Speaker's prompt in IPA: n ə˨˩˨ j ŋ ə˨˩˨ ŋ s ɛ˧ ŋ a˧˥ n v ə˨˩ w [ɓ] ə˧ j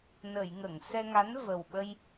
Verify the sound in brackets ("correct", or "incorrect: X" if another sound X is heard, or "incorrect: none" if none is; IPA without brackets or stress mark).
correct